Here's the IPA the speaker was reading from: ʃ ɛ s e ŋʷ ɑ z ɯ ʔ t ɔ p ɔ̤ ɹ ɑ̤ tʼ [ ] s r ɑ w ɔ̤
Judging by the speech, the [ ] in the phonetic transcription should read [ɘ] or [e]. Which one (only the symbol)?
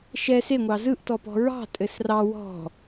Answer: ɘ